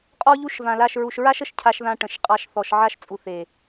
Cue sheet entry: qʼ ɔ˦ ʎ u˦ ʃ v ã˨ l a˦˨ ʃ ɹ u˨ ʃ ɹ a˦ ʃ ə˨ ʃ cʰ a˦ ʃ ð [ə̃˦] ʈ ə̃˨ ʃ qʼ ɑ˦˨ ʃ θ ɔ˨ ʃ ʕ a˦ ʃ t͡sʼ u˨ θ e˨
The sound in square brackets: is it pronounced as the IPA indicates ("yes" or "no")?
no